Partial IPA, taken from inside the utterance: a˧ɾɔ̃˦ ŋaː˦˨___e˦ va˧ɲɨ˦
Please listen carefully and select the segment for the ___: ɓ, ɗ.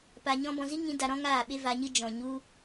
ɓ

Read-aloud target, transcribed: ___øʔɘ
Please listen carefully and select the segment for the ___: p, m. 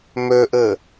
m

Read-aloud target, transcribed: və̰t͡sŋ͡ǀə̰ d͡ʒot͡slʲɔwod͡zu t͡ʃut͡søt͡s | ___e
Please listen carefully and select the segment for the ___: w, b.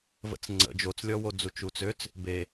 b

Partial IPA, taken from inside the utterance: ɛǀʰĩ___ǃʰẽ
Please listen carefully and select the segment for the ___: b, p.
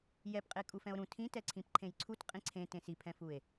p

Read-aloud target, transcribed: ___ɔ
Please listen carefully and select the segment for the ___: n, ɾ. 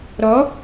ɾ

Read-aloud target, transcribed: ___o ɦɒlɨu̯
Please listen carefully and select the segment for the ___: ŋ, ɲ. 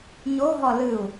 ɲ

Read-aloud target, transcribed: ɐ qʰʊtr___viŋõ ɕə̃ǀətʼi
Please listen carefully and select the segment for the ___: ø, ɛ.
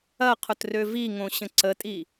ø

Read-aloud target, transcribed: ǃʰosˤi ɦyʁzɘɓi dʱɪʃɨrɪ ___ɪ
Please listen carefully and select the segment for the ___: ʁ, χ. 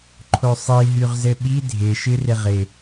ʁ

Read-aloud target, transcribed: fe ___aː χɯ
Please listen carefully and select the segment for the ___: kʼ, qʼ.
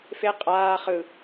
qʼ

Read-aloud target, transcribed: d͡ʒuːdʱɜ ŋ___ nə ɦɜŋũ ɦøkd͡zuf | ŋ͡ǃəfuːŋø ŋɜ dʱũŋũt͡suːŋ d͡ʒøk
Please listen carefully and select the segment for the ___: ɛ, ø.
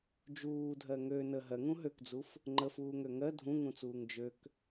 ø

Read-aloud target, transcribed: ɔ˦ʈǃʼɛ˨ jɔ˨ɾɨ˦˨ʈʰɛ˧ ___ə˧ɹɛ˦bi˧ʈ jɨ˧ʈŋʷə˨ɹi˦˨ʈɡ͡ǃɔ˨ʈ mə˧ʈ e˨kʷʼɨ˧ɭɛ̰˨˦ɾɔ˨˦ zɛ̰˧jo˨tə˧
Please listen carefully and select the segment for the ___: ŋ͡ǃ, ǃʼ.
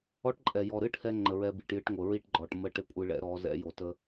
ŋ͡ǃ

